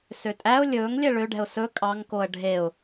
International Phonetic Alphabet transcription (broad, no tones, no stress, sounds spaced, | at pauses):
s ø tʼ æ ʊ̯ lʲ ɵː ŋ lʲ ɛ ɭ ø ɖ ɛ̤ ʊ̯ s ɵ kʼ ɑ ŋ k o ə̯ ɖʱ e ʊ̯